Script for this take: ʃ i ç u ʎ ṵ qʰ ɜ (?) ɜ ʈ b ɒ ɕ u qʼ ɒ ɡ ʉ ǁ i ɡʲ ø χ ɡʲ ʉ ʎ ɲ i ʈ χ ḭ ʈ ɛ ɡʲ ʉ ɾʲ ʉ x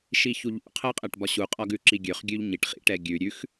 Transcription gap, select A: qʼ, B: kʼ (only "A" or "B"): A